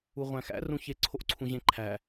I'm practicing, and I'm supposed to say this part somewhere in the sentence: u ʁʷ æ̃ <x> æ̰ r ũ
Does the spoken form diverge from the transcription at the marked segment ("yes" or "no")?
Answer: no